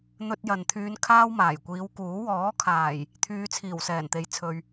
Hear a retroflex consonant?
no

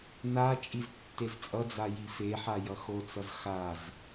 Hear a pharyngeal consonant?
yes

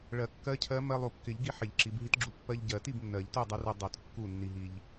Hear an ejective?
no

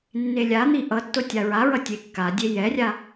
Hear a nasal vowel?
no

